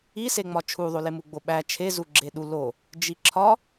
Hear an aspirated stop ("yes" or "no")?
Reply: yes